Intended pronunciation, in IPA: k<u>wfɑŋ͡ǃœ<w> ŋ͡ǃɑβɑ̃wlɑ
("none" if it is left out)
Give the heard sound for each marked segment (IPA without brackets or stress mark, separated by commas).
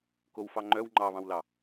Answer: o, w